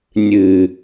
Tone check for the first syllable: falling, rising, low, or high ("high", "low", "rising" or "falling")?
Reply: low